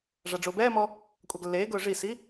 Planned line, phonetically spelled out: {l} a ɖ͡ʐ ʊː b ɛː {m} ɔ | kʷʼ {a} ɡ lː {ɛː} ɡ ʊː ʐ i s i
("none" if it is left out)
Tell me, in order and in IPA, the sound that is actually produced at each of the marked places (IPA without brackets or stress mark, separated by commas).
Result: ʐ, m, a, eː